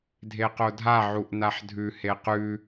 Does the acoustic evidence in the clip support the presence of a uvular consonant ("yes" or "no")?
yes